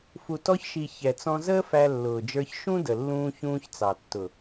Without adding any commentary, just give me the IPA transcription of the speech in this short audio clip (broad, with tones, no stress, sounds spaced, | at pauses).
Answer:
f u˨ t ɔ˧ ç ʃ i˨ ç ɛ˨ t͡s ɔ̃˧ z əː˦ f æ˧ lː ʊː˨ d͡ʒ ə˞˧ ç ʃ ũ˦ d ə˨ lː ũː˧ ç ũː˧ ç t͡s ɑ˨ tː ʊ˨